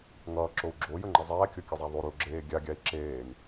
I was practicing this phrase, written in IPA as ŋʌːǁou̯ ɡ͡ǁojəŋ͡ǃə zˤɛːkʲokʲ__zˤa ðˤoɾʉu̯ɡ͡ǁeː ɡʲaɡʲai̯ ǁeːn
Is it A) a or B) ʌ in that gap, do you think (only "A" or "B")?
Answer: B